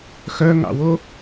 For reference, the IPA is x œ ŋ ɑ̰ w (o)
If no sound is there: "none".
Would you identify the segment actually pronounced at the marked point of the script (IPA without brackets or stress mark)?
o